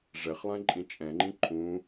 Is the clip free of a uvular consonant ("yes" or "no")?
no